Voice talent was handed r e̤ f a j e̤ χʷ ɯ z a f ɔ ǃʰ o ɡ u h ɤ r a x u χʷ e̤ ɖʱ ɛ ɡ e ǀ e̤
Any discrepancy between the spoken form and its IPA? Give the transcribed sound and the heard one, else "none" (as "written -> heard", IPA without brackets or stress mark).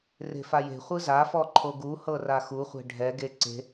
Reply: none